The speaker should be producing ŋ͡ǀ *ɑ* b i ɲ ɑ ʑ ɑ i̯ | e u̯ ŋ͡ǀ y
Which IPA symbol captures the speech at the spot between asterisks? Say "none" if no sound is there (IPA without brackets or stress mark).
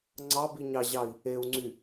ɑ